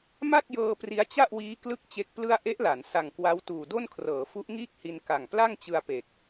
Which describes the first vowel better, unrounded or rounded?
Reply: unrounded